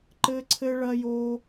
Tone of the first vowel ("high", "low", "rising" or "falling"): high